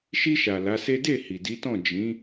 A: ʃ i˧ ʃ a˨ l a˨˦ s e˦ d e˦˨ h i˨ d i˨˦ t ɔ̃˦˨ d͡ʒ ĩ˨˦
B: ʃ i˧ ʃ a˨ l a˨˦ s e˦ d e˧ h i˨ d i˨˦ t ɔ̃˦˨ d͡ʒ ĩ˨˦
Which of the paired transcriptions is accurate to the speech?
A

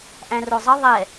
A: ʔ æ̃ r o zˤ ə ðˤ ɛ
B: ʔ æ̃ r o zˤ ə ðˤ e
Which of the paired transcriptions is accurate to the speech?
A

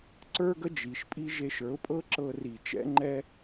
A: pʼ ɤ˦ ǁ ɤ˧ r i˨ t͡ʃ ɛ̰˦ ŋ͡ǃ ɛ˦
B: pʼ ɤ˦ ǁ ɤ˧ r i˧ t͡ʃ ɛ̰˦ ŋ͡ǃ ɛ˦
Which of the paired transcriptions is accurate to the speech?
A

